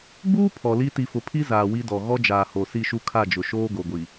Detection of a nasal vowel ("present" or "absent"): absent